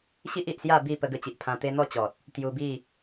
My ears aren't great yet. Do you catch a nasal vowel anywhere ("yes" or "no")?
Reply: yes